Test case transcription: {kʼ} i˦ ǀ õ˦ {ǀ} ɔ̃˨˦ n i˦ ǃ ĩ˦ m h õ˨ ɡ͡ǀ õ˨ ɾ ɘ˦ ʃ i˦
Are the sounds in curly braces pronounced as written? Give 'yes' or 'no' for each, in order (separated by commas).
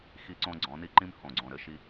no, no